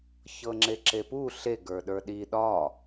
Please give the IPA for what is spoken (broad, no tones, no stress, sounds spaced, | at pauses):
ç ɤ ŋ͡ǁ e ǁ e p u ɬ e ɡ ə˞ ɗ ə˞ ɗ i ɗ ɒ